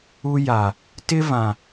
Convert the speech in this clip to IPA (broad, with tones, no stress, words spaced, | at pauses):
u˦ ja˨ | tɪ˦vã˨